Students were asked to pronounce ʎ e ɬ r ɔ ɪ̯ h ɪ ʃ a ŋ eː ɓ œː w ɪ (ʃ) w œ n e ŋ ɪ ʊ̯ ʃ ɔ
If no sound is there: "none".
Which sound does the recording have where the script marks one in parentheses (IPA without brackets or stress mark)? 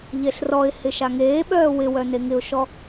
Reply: none